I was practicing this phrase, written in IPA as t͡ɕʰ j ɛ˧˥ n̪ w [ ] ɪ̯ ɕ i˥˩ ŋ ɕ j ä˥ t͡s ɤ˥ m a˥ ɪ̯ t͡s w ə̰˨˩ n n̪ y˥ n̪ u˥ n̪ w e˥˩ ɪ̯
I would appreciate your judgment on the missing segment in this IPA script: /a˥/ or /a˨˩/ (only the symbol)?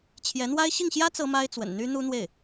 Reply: a˥